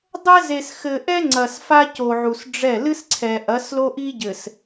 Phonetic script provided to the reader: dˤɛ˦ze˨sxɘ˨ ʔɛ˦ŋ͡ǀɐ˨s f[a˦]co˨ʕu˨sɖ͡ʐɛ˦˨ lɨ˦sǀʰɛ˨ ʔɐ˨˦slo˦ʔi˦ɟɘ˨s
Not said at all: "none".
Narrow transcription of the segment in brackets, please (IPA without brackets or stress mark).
a˦